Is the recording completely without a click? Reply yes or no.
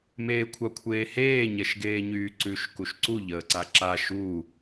no